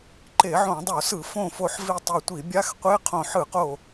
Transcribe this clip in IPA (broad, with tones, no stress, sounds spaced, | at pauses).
ǃ e˧˩˧ ʕ õ˧˩˧ dˤ o˧˩˧ s ɯ˧˩˧ f õ˧˩ f o˧˩ ħ v i˧˩ tˤ e˧˩ tʷ i˧˩˧ bʲ a˧˥˧ x qʷ e˧˥˧ qʰ õ˧˩ ħ ɯ˧˩˧ q o˧˩